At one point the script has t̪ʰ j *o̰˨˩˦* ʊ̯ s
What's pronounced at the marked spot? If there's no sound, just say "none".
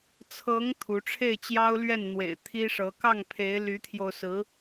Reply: o˧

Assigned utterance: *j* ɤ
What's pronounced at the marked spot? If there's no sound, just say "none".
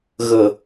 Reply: ɣ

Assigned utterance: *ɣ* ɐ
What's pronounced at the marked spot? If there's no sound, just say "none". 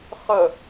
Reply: χ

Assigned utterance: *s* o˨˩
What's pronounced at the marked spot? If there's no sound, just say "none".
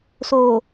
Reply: s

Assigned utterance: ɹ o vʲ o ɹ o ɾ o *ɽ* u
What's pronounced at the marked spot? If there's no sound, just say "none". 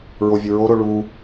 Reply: ɭ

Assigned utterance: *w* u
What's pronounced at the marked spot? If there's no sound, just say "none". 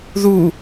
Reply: ð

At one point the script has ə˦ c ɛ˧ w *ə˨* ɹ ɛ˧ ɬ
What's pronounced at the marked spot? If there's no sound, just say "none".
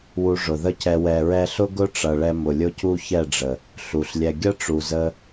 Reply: ɛ˨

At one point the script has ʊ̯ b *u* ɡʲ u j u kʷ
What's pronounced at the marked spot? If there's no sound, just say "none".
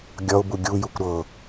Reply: u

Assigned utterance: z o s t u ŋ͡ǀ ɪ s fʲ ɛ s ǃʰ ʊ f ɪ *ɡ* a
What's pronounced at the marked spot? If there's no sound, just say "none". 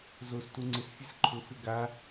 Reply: ɡ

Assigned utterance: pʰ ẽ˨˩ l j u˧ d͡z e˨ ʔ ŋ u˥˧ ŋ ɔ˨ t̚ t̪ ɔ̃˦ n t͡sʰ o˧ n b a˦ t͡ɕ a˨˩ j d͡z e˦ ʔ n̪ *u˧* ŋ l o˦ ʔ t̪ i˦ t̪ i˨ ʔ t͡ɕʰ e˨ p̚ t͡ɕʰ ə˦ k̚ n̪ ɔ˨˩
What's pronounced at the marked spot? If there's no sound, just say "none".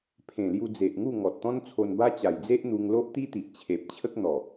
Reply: u˧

